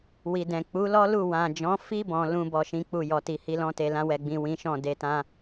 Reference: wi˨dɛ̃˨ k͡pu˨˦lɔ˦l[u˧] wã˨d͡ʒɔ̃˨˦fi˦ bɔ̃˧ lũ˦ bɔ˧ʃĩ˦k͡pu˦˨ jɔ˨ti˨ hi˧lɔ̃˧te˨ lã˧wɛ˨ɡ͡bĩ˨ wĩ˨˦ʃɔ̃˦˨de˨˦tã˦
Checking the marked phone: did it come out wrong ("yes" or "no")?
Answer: yes